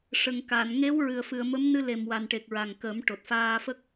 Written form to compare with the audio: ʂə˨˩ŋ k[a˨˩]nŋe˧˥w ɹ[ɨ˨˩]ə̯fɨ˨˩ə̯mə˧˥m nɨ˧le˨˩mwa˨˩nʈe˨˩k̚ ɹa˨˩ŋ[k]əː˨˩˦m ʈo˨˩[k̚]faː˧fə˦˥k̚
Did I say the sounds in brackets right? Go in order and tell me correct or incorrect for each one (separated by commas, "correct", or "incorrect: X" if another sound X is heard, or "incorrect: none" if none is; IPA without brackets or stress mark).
incorrect: a˨˩˨, correct, correct, incorrect: t̚